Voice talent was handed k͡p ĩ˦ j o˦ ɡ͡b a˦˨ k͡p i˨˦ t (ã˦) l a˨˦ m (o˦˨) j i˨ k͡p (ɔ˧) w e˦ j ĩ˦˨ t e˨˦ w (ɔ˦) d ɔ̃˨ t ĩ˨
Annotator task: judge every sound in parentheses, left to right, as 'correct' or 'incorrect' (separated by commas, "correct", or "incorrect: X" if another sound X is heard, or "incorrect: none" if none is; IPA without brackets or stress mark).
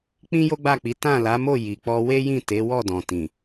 incorrect: ã˦˨, correct, correct, incorrect: ɔ˦˨